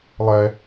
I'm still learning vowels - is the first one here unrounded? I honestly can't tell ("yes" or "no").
yes